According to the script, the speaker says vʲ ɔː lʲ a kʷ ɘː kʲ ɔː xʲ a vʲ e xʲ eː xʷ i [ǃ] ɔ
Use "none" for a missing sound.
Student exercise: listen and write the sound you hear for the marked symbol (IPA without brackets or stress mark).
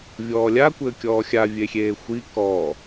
k